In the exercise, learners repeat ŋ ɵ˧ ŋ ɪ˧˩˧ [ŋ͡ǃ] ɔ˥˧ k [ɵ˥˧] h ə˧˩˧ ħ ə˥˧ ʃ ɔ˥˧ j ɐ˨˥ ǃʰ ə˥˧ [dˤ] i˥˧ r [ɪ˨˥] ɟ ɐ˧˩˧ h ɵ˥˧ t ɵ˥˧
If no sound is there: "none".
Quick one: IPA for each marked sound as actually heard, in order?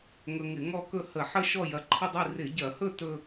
ŋ, ɵ˥˧, dˤ, ɪ˧˩˧

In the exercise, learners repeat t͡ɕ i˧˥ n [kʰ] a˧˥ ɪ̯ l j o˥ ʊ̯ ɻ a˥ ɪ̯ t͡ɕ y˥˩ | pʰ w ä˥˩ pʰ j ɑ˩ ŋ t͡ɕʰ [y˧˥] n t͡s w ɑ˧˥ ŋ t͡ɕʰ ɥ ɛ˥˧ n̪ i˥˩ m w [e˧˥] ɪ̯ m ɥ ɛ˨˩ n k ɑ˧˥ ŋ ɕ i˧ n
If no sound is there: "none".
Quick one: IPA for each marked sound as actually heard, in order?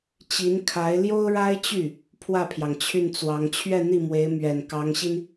kʰ, y˥˩, e˧˥

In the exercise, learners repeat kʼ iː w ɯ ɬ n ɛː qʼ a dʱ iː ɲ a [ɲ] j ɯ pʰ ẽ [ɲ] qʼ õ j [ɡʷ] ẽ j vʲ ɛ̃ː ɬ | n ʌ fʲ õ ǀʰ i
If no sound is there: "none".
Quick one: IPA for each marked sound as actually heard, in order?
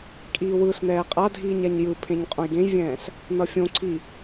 ɲ, ɲ, ɡ

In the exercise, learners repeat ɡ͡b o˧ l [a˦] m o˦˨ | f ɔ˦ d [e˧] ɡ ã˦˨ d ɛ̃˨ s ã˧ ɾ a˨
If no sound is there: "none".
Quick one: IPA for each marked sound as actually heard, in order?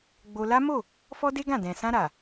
a˦, e˦

